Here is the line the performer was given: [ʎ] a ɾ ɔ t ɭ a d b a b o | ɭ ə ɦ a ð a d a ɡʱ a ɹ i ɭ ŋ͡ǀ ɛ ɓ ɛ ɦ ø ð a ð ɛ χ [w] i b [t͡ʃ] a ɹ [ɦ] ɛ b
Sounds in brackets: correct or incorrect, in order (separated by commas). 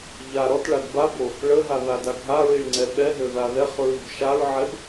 correct, incorrect, incorrect, incorrect